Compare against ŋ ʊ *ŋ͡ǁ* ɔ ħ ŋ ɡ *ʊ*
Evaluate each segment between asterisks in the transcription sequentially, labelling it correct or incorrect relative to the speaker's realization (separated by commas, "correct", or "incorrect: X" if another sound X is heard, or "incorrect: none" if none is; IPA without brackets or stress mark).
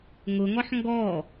incorrect: ŋ, incorrect: ɔ